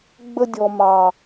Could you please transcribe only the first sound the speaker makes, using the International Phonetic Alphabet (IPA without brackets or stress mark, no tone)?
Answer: ɡ͡b